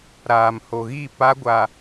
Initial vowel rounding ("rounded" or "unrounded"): unrounded